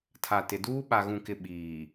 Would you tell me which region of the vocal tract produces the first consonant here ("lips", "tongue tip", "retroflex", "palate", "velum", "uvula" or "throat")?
tongue tip